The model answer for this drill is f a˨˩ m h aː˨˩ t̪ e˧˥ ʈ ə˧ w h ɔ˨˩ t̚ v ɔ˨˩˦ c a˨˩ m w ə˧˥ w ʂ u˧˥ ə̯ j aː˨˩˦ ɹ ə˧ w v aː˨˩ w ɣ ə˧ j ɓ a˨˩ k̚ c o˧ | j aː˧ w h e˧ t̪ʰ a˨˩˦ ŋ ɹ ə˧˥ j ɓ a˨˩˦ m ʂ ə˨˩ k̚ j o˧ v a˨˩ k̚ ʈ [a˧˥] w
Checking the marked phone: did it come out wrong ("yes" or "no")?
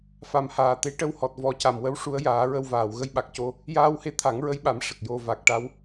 no